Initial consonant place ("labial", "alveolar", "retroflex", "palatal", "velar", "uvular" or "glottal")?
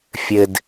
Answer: labial